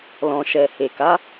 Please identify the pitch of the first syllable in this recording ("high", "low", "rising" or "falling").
low